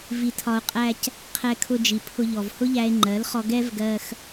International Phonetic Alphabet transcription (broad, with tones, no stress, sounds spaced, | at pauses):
v i˧ tʰ ɒ˧ o̯ qʼ æ˦ c | qʰ ɛ˧ kʰ ʊ˧ d͡ʒ i˨ pʰ ʊ˧ ʎ ɔ˨ v h ʊ˦ ʎ æ˧ e̯ ŋ͡ǃ ɜ˨˦ l χ ɔ˧ ɡ ɛ˦ v ɡ ɜ˧ x